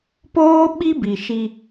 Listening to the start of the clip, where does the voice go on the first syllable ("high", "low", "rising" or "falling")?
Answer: high